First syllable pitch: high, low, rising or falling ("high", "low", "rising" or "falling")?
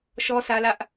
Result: high